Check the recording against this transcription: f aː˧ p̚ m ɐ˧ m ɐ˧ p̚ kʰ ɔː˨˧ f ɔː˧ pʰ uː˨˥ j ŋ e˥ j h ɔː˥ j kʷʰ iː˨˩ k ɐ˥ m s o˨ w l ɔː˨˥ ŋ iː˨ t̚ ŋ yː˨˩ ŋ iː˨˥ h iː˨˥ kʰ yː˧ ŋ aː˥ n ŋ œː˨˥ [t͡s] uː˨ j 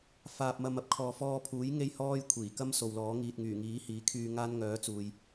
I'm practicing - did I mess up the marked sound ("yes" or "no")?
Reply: no